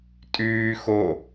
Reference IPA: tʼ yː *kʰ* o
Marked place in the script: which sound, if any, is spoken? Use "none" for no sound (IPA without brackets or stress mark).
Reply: x